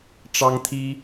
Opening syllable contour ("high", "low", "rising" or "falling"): high